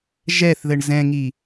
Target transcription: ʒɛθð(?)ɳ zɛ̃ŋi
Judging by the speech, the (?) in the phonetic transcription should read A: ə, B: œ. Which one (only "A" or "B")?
A